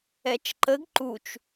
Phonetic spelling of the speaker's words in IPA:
ɛ t͡ʃ ǃ ə ɡ ǃ u t͡ʃ

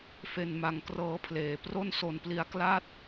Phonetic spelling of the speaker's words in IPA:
f e˧ n m a˧ ŋ k r ɤː˦˥ pʰ l eː˩˦ p r o˥˩ n s o˧ n p l i˧ a̯ k l a˥˩ t̚

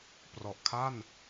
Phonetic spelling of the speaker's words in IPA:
p r ɔ˨˩ ʔ kʰ a˥˩ n

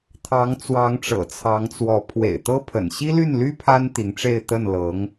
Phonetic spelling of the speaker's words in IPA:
t̪ʰ ɑ˧˥ ŋ t͡s w ɑ˧˥ ŋ ʈ͡ʂ ɤ̰˨˩ t͡sʰ ɑ˧˥ ŋ t͡s w ɔ˧˥ pʰ w ḛ˨˩ ɪ̯ t̪ ɤ˥ pʰ ə̰˨˩ n ɕ i˥ l y˥˩ n l y˥ pʰ a˥ n t̪ i˧˥ ŋ ʈ͡ʂ e˥˧ ɪ̯ t̪ ə˥˩ n l ɤ˧˥ ŋ

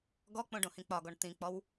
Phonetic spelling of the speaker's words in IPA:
ɡ ɔ k͡p õ ɖ õ h ĩ k͡p ɒ ɡ ɔ ɳ t̪ ĩ k͡p ɔ w

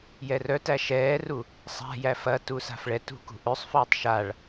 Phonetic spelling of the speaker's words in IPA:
j ɛ r œ t æ ʃ ɛː r u | sˤ a̤ j æ f ɐ t u s a̤ f ɭ ɛ t ṳ k ṳ ʔ ø sˤ f œː tˤ ʃ a ɭ

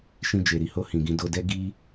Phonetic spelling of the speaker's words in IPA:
ʃ ĩ˧ d͡ʒ e˨ ɾ i˧ h o˧ h ĩ˨ ɡ ĩ˧ d o˧ d ɛ˦ ɡ i˦

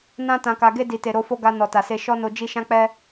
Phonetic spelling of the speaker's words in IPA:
n ã˧ t ã˨ k a˨ ɡ e˧ d i˨ t e˨ ɾ o˧ f o˧ ɡ a˨ n ɔ˨ t a˨ s e˧ ʃ ɔ˦ n o˧ d͡ʒ i˧ ʃ ã˦ k͡p ɛ˦

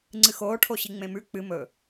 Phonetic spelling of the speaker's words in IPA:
ŋ͡ǀ ɨ x oː ʈʰ o ɕ i ŋ͡m ẽ m ʉ k͡p ɨ m ɵ

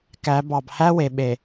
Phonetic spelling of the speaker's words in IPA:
k æ˨˦ b ɑ˨ b h æ˦ w e˨ ɓ e˨

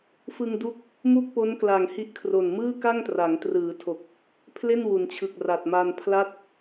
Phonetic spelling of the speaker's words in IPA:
f ɯ˧ ŋ d u˦˥ k̚ | m u˥˩ k̚ p o˦˥ n k l a˨˩ ŋ h i˦˥ ʔ kʰ r o˨˩ n m ɯː˥˩ k a˥˩ ŋ t r a˩˦ ŋ t r ɯː˩˦ tʰ o˨˩ k̚ | pʰ l e˥˩ n w u˩˦ n t͡ɕʰ ɯ˨˩ k̚ r a˨˩ t̚ m a˧ n pʰ l a˥˩ t̚

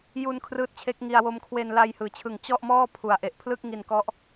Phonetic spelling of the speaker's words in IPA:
j u˧ n kʰ r ɯː˦˥ t̚ t͡ɕʰ e˦˥ k̚ ŋ i˧ a̯ w o˧ m kʰ w e˧ n l a˧ j h ɯː˩˦ t͡ɕʰ ɯ˨˩ ŋ t͡ɕ ɔ˥˩ ʔ m ɔː˥˩ pʰ u˨˩ a̯ ʔ e˨˩ ʔ pʰ l ɯ˥˩ k̚ ŋ i˧ n k ɔ˦˥ ʔ

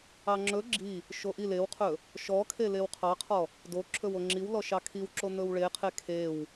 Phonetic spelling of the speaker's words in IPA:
ɑ ŋ͡ǁ ɵ ɡ͡ǁ i | ʃ o ʔ i l e w qʰ ɵ | ʃ ɔ kʰ e l e w qʰ ɑ qʰ ɔ | d o ǁʰ ɵ w o ŋ͡ǁ i w l ɔ ʃ ɑ kʰ i w ǁ o n̪ ɵ w ɭ e qʰ e kʰ e w

